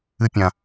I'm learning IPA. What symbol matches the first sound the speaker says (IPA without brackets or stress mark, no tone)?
ɨ